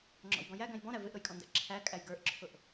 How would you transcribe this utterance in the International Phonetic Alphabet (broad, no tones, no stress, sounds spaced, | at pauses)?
ŋ͡ǁ ɔ̰ j ɡ ɔ̃ j æ ɡ æ̃ j b ɔ̃ ɾ æ v ɪ ʔ ɾ ʊ j kʼ ɔ̃ n d æ̰ ǁʰ æ kʼ æ j ɡ ə˞ ʔ ǁʰ ʊ ʔ